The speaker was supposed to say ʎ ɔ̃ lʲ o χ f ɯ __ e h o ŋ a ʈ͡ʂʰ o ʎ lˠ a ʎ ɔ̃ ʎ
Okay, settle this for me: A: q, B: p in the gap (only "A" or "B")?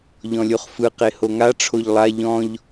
A